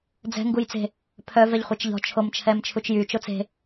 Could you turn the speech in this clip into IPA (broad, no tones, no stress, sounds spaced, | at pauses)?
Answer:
d͡z ɛ̤ ŋ ɡ u j t͡s e̤ | pʰ œ v ɛ ʎ χʷ e t͡ʃ ʎ ɔ̤ t͡ʃʰ o m t͡ʃʰ ɛ m t͡ʃʰ u t͡ʃ j y t͡ʃ o t͡s e̤